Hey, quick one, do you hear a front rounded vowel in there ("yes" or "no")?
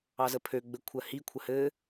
yes